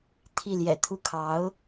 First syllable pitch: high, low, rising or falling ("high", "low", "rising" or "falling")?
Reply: falling